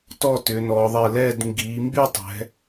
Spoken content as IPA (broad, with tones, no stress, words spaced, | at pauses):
tɔ˥˧tʏː˩˧nɔː˩˧ ðˤɛ˧˩lɛː˥˧d ŋɡiː˩˧mby˥˧tˤɛ̤˩˧